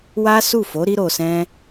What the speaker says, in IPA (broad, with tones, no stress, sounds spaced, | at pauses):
w a˦ s u˦˨ f o˨˦ ɾ i˧ ɾ o˨ s ɛ̃˧